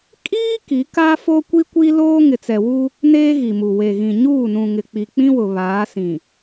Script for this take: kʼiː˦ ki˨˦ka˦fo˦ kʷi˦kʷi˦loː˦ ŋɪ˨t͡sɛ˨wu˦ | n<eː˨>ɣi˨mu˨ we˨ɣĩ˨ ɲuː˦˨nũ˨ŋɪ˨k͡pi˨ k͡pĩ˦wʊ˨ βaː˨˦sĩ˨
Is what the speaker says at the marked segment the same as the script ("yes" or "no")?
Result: no